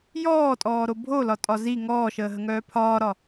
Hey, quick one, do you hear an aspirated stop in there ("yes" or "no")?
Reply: yes